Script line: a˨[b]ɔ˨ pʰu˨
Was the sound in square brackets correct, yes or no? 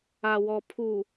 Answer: no